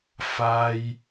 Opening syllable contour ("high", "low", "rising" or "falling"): high